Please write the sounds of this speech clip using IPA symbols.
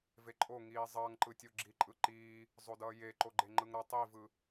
v e ǃʼ o ŋ iː zˤ ʌː ŋ ǃ ɯ tʲ o ɡ͡ǁ iː ǃʼ ɯ ǃ iː | zˤ o d ʌː j e ǃ o ɡ͡ǃ e ŋ͡ǃ ɯ ŋ ɾ ʌ tˤ i v ɯ

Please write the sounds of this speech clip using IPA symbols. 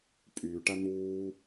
pʼ yː ʈ a n̪ uː

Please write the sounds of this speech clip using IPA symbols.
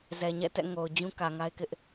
z ɛ˨ ɲ ɛ̰˦˨ t ɛ̰˦˨ ŋ o˨ ʊ̯ d͡ʑ ũ˦ k ä˨ ŋ a˦ ɪ̯ k ɪ˦ ʔ

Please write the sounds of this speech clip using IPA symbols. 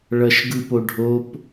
ɭ ʌ ʃ ɡ ɯ p o ɖʱ o p

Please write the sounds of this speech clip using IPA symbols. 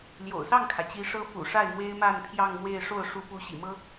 l j o̰˨˩ ʊ̯ s ɑ˥˩ ŋ kʰ ä˩ t͡ɕ i˧˥ ʂ ɤ˥ f ṵ˨˩ ʂ a˥˩ ɪ̯ m w e˥ ɪ̯ m a˥˧ n pʰ j ɑ˥˧ ŋ m w e˥˧ ɪ̯ ʂ o˥˩ ʊ̯ ʂ u˧˥ p u˧˥ ɕ ḭ˨˩ m ɤ˥

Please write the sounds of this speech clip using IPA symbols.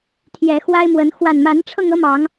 t̪ʰ j ɛ˨˦ x w a˦ ɪ̯ m w ə˨˦ n x w a˨˩ n m a˨˦ n ʈ͡ʂʰ ɤ˧ ŋ ɤ˦ m ɑ˨˦ ŋ

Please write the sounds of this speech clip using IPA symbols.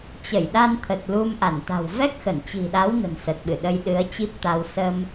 t͡ɕ ə˧˩ j ɗ a˧ n t̪ʰ ə˨˩ t̚ l u˧ m ʔ a˧˩ n t̪ a̤˨˩ w v ɛ˦˥ k̚ x ə˧˩ n t͡ɕ i̤˨˩ ɗ a˨˦ w n ə̤˨˩ n s ə˨˩ t̚ ɓ ɨ˧˩ ɗ ə˧ j ɗ ɨ˨˦ ə̯ t͡ɕ i˦˥ p̚ t̪ a˧ w s ə˧ m

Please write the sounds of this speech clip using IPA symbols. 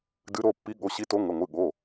d ɨ˨˦ ɾ o˩˧˩ pː i˨˦ ɠ o˩˧˩ ɕ i˨˦ t o˨˦ ŋ ə˩˧˩ ŋʷ ɨ˩˧˩ ɠ o˩˧˩

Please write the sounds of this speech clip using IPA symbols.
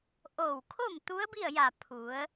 ʔ oː˧˩ w kʰ o˥˨ m t̪ u˧˥ ə̯ b i˥˨ ə̯ j a˧˩ pʰ u˩˧ ə̯

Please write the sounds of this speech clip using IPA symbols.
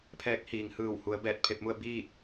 pʰ ɛː˧˥ k̚ h iː˩ ŋ h ɯː˧˩ w h u˩˧ ə̯ b ɛː˧˩ t̚ pʰ e˧ p̚ m u˥˨ ə̯ b iː˥˨ t̚

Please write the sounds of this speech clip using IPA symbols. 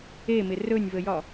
e m ɪ r ɵ nʲ v ə j ɒ

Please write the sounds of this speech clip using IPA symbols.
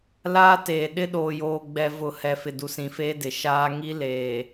l aː˦ t eː˨ ɗ ɪ˦ ɗ oː˨ j oː˨ ɡ͡b ɛ˨ v ʊ˨ h ɛ˨ f ɪ˨ d u˨ s ĩ˨ f eː˦ d ɪ˨ ʃ aː˦ ŋ i˦ l eː˨

